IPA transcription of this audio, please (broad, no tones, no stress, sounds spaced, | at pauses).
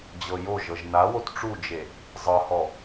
d͡ʑ ɤ j o ʒ ɤ ʒ n a w o t ʈ͡ʂ u d͡ʒ e | zˤ ɤ h ɔ